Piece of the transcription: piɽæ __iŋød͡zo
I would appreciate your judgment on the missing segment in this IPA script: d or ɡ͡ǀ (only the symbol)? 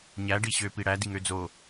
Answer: d